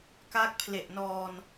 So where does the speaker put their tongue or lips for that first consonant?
velum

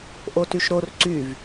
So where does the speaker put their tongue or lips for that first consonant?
throat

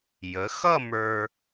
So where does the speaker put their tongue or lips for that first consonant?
palate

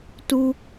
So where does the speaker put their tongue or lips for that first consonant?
tongue tip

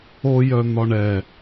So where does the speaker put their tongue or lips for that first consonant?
palate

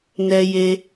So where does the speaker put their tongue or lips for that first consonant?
tongue tip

